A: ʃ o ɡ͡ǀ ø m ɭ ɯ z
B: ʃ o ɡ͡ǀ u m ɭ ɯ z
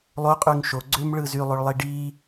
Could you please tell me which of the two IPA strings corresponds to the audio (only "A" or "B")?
A